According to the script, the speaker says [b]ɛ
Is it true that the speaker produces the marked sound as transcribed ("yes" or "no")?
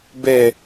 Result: yes